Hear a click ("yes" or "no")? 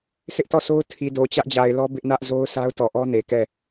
no